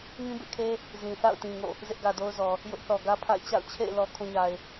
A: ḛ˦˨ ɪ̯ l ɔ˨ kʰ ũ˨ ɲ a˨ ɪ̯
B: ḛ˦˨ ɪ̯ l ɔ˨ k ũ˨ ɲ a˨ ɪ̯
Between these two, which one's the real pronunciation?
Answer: A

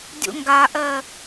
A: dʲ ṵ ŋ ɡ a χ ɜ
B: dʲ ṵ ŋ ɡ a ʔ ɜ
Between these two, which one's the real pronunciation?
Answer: B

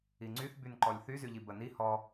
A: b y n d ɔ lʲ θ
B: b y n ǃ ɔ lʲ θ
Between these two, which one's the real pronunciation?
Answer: B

